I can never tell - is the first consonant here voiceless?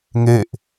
no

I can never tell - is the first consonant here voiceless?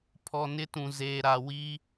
yes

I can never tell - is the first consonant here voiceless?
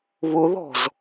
no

